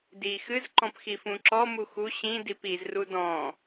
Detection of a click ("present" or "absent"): present